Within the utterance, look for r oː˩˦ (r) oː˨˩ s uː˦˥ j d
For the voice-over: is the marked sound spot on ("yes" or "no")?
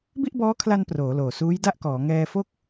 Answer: no